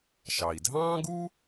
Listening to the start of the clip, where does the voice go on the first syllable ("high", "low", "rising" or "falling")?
low